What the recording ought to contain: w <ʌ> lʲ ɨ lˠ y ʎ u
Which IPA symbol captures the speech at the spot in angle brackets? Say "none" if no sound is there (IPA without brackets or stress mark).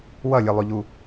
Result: ʌ